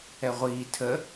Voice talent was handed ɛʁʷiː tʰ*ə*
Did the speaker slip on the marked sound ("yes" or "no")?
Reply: no